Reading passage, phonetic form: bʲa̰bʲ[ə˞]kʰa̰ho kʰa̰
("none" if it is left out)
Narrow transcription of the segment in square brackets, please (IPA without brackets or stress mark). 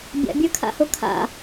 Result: ə˞